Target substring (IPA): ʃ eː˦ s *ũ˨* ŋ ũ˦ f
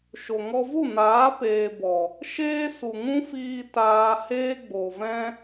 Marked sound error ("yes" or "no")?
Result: yes